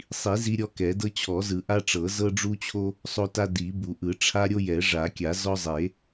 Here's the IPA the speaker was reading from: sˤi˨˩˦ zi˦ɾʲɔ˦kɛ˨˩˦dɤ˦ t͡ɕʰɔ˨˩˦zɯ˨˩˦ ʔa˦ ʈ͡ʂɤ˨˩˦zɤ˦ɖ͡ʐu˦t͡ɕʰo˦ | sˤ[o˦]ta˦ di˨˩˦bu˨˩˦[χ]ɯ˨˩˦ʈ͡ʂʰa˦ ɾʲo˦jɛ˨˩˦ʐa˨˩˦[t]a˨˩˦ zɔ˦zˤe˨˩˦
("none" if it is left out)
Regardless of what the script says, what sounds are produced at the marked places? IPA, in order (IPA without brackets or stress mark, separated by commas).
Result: o˦, ʔ, kʲ